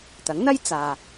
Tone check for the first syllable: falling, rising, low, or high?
rising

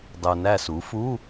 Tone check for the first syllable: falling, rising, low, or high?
low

